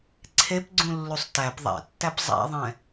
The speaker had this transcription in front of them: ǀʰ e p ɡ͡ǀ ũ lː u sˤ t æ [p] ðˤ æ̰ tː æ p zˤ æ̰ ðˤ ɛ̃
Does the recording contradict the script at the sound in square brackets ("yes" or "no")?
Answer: no